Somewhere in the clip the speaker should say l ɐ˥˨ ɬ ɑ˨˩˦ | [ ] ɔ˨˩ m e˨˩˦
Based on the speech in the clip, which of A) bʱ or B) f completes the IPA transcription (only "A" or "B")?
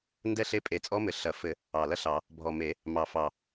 A